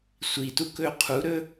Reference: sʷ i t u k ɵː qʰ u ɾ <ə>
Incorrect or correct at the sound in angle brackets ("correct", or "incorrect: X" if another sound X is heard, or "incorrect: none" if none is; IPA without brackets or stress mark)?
incorrect: ɵ